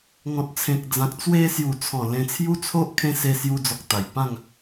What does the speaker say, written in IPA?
ŋ ɔ̃˨ t̚ t͡sʰ ẽ˨ k̚ d͡z ã˨ k̚ t͡s w e˧ s j u˨˩ t͡sʰ ɔ̃˨˩ l ẽ˧ t͡sʰ j u˦ t͡sʰ o˦ ʔ kʰ ẽ˦ s e˧ s j u˧ d͡z ɔ˨ k̚ t̪ a˨˩ j p ã˥˧ ŋ

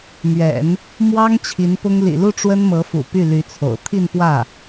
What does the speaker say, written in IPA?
m ɥ ɛ̰˨˩˦ n | m w ɑ˥ ŋ t͡ɕʰ i˧˥ n p ʊ˥ ŋ l ḭ˨˩ l u˥˩ ʈ͡ʂ w ə˥ n m ɤ˧˥ f ṵ˨˩ p y˥˩ l y˧˥ t͡sʰ o̰˨˩ ʊ̯ t̪ʰ i˥˧ n p w ä˥˩

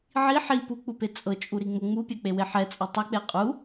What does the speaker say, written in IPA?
ʕ i ħ i p u k͡p u p e t͡sʼ ɤ t͡ʃʼ u ɾ i ŋ͡m ɤ ŋ͡m u pʲ ɛ k͡p e w e ħ ɛ t͡sʼ ɤ tˤ ɛ k͡p e qʼ u

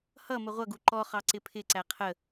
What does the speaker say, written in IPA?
h ʌ m ə ʁʷ ʌ ɡ u ǃ ɔ χ ɑ ǀ ɪ pʰ ɪ ǀ æ qʰ ə

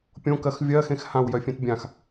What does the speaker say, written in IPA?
pʲ õ k ɜ x vʲ ɜ x ẽ x h ã w j œ fʲ ẽ t bʲ ã x

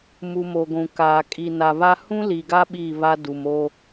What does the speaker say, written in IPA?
m u˨ m o˨ ɡʷ ũ˨ k aː˨ kʼ i˨ n a˨ β a˦ h ũ˦ l i˨ ɡ a˦ ɓ i˦˨ β a˦ d u˨ m o˦

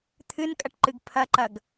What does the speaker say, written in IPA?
t̪ʰ ɨ n kʼ ɐ ʈ ǃ ɨ ɡ pʰ ɐ ǃ ɐ ɡ

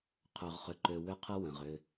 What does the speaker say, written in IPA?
qʰ ø˨ ʁ χ ʏ˨ ǃ ø˨ w ʏ˦ qʰ ə˦ w ə̃˨ ʁ ʏ˦

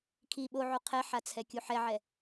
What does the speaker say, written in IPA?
kʰ i ɓ o ʕ u qʰ ɛ ħ a t͡sʰ ɛ kʲ u ħ ɛ ʕ ɛ

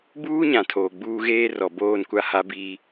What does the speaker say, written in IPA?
b uː˦ ɲ ã˨ tʰ oː˨ ɡ͡b uː˦ ɣ eː˦ r ɔ˨ b oː˦˨ n kʷ a˦ h a˦ b iː˦

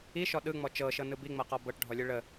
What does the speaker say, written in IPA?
i ʃ ɔ ɗ ɯ ŋ͡m ɔ t͡ʃ ɤ ʃ ɤ n ɯ b i ŋ͡m ɤ q ɔ b ɤ ʈ ɖʱ ɔ lʲ ɯ ɭ ə

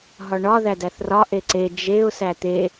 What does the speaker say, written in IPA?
ɦ ɒ ɳ ɒ ð æ d æ θ r ɒ ʔ e ǀ e d͡ʒ e ʊ̯ s æ t̪ e

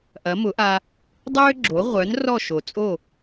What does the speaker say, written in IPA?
ʔ ɐ˩˥ m ʊ˩˥ ʔ a˧ | dˤ øː˥ ɡ͡ǁ o˩˥ ʁʷ œ˩˥ n r ɔ˥˩ ʃ o˩ t͡sʼ o˥˩

